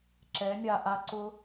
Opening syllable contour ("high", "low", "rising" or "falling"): rising